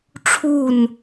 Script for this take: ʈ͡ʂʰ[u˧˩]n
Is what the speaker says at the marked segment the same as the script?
no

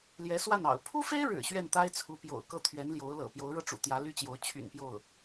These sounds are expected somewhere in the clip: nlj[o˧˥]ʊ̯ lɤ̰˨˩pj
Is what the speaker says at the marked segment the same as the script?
yes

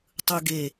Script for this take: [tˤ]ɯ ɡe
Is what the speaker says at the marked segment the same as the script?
yes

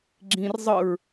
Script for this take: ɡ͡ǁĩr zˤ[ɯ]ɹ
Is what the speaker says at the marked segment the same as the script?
yes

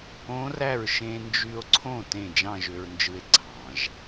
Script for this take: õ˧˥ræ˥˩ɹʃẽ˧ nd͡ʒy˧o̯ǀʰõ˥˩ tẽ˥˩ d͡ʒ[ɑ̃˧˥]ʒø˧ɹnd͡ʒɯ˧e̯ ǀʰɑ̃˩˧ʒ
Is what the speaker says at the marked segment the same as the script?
no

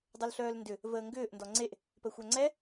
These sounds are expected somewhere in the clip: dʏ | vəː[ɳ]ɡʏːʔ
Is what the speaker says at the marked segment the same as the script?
no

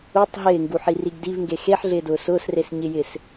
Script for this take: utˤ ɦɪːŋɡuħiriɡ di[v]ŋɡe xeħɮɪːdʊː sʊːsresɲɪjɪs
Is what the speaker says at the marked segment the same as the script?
yes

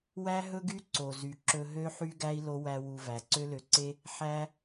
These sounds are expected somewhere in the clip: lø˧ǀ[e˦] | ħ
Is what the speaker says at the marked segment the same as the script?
yes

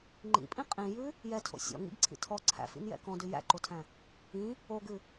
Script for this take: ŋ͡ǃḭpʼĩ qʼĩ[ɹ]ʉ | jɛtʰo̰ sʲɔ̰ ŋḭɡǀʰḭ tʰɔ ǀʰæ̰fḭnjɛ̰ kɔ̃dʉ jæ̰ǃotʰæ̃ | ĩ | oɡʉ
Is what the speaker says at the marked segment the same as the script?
no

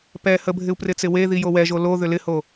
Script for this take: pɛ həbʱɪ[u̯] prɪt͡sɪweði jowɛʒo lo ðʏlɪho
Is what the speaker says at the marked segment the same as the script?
yes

